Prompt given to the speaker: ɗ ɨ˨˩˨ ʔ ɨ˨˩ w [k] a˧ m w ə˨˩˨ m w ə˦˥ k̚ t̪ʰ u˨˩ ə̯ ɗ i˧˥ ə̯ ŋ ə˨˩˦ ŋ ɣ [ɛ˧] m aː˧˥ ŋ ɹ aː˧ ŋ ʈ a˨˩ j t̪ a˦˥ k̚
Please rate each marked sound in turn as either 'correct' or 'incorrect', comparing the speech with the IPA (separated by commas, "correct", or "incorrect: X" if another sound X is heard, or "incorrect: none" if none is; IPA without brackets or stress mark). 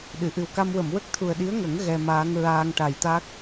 correct, correct